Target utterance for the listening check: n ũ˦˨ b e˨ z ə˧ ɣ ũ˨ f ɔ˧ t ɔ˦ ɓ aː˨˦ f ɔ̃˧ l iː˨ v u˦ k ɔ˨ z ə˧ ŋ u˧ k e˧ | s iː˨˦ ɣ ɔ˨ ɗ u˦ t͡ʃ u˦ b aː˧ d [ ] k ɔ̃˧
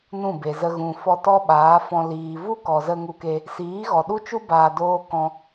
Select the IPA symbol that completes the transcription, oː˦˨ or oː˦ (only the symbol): oː˦